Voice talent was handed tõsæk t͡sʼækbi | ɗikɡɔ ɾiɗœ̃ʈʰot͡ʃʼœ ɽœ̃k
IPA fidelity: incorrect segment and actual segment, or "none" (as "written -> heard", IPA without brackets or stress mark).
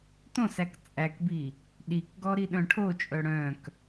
none